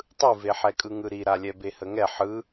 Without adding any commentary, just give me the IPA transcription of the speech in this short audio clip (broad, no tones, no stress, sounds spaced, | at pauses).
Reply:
tˤ ɯ v e ħ ɛ kʼ ɯ ŋ ɯ ɾ i ɾ a lʲ ɛ b e h ə ŋ ɛ ħ ɯ